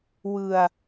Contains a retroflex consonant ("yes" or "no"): no